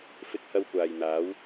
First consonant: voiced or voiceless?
voiceless